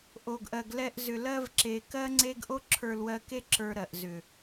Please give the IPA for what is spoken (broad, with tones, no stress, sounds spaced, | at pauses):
ʔ o˨ ɡ ʔ ɜ˨ ɡ l ɛ˧ ʔ z ʏ˨ l ɜ˧ v ǁ e˨ k ɜ˦ ŋ͡ǀ e˦ ɡ ʔ o˦ ǁʰ ə˞˧ l w ɜ˧ k e˦ ǁ ə˞˧ ɾ ɜ˨ ʔ z ʏ˨